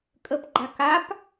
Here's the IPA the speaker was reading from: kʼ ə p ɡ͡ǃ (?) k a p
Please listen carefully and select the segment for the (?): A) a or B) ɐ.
A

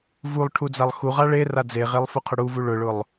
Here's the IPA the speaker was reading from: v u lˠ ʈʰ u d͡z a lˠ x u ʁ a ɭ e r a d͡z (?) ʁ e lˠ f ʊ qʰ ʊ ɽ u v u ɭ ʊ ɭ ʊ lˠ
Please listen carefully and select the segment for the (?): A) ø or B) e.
B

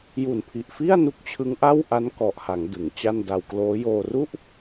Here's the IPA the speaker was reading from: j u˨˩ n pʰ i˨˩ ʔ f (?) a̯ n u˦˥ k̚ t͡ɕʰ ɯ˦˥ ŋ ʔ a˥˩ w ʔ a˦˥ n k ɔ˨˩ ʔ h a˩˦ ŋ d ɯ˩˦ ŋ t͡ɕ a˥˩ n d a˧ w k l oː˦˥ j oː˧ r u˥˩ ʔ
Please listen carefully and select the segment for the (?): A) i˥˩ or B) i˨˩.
A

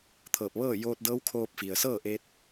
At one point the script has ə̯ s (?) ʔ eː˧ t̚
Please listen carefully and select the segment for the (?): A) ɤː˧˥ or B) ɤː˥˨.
B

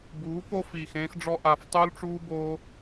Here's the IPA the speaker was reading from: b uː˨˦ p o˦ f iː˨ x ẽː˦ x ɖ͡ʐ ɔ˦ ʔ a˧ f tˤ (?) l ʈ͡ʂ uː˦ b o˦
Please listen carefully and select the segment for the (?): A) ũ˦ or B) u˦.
B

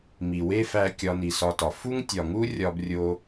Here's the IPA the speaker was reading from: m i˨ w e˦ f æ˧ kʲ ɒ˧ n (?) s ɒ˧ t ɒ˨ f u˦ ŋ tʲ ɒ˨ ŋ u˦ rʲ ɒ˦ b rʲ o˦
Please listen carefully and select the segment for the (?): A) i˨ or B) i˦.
A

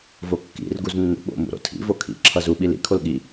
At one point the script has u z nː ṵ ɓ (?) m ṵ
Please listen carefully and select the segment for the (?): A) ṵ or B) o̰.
B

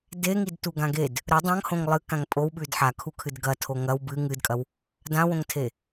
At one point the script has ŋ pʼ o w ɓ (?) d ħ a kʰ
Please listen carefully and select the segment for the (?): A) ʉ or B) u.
A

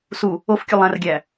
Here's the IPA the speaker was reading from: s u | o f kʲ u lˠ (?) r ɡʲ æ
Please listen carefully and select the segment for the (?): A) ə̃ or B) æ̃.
B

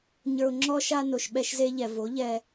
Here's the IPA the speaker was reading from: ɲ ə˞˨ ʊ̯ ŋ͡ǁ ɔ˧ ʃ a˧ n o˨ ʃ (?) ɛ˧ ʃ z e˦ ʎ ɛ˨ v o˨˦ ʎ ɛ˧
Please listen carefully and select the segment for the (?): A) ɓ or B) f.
A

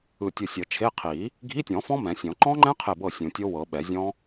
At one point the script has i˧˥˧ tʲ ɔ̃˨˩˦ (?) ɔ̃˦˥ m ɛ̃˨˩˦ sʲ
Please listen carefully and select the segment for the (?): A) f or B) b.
A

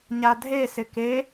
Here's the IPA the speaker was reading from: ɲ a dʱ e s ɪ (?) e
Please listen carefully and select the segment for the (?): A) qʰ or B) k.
B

